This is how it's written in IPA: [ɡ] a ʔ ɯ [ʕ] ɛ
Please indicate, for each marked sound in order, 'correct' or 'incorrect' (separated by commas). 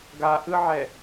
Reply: correct, correct